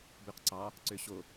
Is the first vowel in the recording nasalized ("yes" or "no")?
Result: no